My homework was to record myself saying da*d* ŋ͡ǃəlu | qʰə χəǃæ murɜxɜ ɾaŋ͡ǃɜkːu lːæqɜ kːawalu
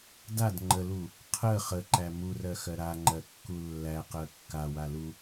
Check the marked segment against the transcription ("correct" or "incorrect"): correct